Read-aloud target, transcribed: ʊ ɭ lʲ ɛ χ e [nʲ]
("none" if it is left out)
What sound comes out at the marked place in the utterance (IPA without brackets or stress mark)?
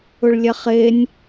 nʲ